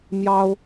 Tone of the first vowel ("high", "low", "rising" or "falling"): high